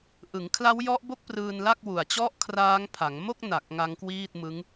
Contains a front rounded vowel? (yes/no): no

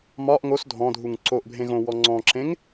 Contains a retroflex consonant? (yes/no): no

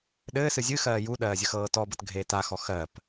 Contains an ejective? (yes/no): no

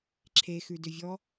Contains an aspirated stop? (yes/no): yes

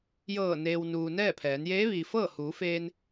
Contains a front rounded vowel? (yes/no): no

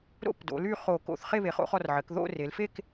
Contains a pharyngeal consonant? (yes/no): yes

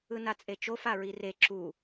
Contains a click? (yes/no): yes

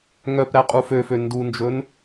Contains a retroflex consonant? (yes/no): no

